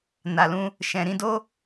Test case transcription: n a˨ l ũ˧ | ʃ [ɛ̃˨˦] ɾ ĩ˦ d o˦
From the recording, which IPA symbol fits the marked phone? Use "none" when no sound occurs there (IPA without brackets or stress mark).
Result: ɛ̃˧